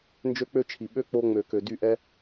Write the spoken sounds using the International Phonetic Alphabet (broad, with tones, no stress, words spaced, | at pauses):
nd͡ʒø˦k͡pø˦t͡ʃʰi˨ ɓø˦ k͡po˧ ŋ͡mø˨kø˨ dy˦˨ʔɛ˦